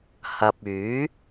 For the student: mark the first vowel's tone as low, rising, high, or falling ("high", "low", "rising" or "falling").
low